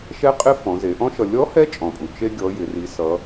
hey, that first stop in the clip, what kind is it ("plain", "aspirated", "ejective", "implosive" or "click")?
ejective